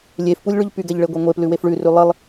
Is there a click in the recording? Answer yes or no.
no